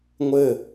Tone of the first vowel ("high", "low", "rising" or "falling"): falling